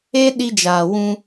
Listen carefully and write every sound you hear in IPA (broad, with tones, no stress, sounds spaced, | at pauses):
e˦ ɗ i˧ d͡ʒ aː˨ w ũ˧